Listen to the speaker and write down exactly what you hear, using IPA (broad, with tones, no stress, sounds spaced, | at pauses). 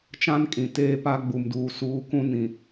t͡ʃ ã˦ n kʼ ĩ˨ t eː˦ p a˦ ɡ͡b u˨ m d uː˨ s uː˨˦ k ũ˦ n ĩ˨